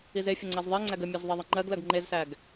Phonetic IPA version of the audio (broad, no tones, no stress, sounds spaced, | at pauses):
i z e fʲ ə ŋ͡ǀ ɜ z ðˤ e ŋ͡ǀ æ ɡ ə mʲ ɜ z ðˤ e ðˤ ə ŋ͡ǃ ɜ ɡ l ɜ ɡ ŋ͡ǃ e z s æ ɡ